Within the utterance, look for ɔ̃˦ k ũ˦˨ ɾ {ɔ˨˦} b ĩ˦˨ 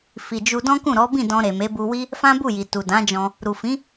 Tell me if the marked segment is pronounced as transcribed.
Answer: yes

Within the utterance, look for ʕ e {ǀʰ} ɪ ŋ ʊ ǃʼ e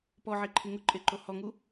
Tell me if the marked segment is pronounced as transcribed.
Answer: no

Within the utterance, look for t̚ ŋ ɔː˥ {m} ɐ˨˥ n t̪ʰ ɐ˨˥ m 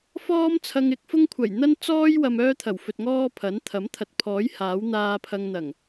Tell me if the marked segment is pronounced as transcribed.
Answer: no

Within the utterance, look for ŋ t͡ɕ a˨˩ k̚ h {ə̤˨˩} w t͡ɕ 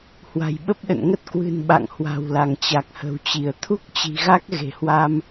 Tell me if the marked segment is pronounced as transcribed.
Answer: yes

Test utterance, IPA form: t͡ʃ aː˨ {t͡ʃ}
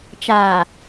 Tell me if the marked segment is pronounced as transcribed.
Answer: no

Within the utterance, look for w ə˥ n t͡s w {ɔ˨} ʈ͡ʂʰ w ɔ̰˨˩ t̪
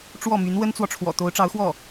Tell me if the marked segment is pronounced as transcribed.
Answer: yes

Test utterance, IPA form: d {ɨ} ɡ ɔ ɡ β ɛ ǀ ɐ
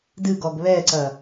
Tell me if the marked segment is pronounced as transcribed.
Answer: yes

